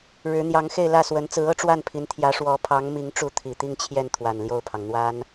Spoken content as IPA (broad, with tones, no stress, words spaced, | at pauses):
ɻɻ̩˧˥n̪jɑ˧˥ŋxe˥˧ɪ̯lä˥˩ swə˧˥nt͡sɹ̩˧˥ɤ˥˧ʈ͡ʂwa˥˩n pʰi˧˥nt̪ʰjä˧˥ ʂwɔ˧˥pʰɑ˧˥ŋmi˧˥ŋʈ͡ʂu˧˥ t̪ʰi˨˩t̪i˥˧ŋt͡ɕʰjɛ˥˩n t̪ʰwa˨˩nljo˥˩ʊ̯pʰɑ˩ŋ n̪wa˥n